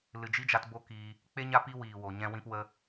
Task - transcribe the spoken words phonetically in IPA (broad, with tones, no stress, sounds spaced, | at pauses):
l ɨ˨ d͡ʒ i˦ d͡ʒ a˧ t b o˦ k iː˧ | k͡p e˦ ɲ a˦ p i˦ w iː˨ w o˨ ɲ ɛ̃˧ w ĩ˧ p w ə˧